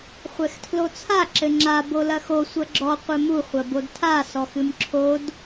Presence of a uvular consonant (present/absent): present